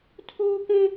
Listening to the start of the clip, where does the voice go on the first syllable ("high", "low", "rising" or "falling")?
high